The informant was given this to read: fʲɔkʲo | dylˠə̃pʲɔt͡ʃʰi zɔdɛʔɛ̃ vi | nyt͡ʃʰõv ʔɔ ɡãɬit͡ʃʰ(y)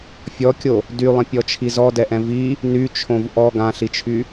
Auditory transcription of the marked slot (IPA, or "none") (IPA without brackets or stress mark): y